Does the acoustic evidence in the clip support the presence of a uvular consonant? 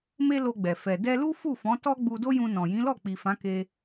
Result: no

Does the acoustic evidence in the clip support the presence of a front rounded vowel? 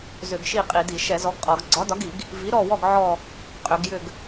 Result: yes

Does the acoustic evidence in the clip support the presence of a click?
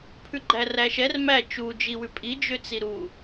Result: yes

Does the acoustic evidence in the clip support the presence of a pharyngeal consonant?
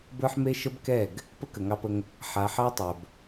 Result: yes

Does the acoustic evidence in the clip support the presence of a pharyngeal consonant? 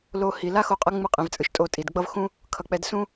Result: no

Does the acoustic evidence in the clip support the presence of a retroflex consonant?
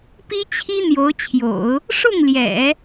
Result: yes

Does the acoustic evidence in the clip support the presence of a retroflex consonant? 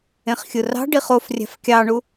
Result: yes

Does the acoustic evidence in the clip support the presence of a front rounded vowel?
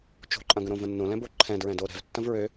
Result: yes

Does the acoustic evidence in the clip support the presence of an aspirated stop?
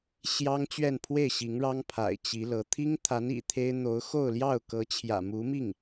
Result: yes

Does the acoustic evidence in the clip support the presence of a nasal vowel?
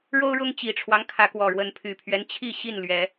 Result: no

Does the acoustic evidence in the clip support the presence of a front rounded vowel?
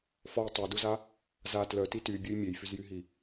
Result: yes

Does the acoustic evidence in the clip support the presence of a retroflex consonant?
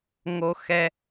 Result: no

